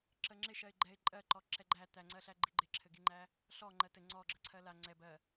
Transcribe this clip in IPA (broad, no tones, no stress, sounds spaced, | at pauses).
ǁ ə ŋ͡ǁ ɪ ʃ ɜ ɪ̯ ɡ͡ǃ ɛ ɪ̯ ǃʼ ɜ ǃ ɔ ǁ ɛ ɡ͡ǃ æ t̪ æ ŋ͡ǀ ɜ ɬ æ ɡ͡ǃ i ɡ͡ǃ ɪ ǁʰ ɘ ɡ i ŋ͡ǃ æ | ɬ ɔ ŋ͡ǃ ɜ t ɘ ŋ͡ǀ ɔ ɡ͡ǁ ə ǀʰ ɜ l a ŋ͡ǀ ɛ b ɜ